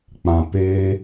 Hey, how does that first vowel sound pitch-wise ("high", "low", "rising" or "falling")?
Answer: low